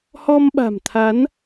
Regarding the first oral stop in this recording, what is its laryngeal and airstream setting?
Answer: implosive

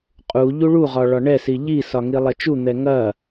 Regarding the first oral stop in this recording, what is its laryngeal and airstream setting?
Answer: ejective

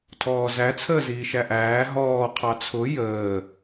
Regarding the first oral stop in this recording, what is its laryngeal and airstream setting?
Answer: aspirated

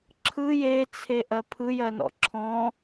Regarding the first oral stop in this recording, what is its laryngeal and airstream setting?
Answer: click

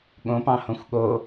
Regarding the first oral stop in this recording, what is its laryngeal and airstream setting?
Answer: implosive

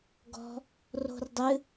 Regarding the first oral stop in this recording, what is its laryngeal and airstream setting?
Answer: plain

